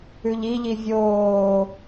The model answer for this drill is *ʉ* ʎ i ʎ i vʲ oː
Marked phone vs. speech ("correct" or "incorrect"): correct